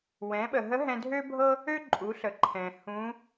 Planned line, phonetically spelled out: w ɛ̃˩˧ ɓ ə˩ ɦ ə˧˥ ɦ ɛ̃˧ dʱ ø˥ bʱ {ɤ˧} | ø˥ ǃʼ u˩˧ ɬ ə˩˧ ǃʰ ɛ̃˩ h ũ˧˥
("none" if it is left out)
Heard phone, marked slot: ɤ˥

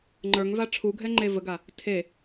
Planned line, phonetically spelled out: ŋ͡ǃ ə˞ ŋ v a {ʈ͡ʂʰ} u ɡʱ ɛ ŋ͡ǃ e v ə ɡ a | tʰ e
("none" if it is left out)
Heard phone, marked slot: ʈ͡ʂʰ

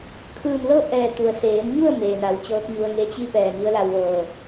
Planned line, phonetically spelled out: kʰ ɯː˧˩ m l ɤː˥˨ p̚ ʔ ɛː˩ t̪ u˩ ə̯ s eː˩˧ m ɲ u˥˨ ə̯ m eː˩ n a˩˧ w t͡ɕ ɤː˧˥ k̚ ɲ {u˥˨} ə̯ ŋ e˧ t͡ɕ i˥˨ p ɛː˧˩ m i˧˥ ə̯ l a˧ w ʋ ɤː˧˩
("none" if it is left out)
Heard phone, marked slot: u˧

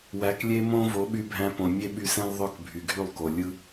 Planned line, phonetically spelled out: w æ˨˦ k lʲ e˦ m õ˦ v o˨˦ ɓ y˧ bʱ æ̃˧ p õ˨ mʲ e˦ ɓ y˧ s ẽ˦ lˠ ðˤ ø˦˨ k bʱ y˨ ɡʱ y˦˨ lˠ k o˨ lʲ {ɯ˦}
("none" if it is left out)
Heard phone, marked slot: ɯ˦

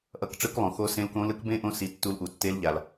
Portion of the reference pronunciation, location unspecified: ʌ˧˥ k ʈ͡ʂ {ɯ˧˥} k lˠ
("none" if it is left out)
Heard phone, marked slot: ɯ˧˥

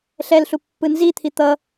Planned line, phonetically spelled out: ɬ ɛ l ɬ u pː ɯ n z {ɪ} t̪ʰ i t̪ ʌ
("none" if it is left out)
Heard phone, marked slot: i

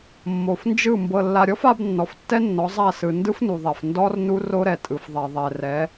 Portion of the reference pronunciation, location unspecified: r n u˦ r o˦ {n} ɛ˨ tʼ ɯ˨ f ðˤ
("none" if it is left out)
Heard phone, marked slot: ɾ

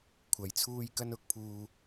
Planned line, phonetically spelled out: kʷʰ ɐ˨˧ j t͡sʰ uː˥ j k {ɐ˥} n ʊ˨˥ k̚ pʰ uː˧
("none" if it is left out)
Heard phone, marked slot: ɐ˥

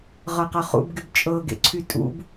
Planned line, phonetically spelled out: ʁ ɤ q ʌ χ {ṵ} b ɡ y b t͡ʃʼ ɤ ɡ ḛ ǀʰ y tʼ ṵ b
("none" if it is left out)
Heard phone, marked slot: ṵ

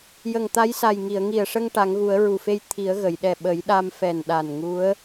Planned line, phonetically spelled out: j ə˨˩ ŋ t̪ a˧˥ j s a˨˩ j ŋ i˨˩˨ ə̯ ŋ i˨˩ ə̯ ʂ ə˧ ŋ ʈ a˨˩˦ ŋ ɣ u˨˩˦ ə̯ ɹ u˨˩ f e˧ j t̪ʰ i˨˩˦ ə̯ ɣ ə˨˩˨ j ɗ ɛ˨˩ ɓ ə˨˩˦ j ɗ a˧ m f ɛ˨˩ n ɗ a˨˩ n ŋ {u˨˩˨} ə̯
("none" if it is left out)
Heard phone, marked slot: u˧˥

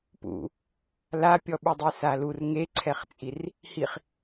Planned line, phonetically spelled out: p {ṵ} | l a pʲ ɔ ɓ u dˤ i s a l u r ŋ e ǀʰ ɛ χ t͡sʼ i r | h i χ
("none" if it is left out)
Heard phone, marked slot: ṵ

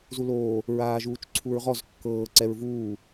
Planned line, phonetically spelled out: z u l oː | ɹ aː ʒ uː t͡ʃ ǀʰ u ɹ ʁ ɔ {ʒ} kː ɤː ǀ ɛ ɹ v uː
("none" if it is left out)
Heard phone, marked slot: z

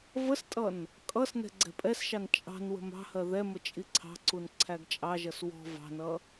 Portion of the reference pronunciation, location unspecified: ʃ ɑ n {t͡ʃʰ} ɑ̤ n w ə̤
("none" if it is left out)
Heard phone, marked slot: t͡ʃʼ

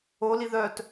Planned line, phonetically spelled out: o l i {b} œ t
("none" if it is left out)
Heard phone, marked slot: ð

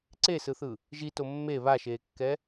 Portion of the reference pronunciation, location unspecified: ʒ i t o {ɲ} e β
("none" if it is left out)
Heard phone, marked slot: mː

